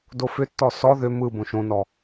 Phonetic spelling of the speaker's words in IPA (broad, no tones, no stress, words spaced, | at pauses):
dofʏtːɔ sɔ ðʏ mɯ bõʃõnɔ